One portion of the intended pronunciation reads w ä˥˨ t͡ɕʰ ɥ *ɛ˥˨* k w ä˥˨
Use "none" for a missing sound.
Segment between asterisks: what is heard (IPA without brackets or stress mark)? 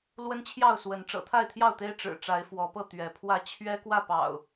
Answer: ɛ˦